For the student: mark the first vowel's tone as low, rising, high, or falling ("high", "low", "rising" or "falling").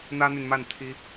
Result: high